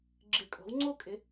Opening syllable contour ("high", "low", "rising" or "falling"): rising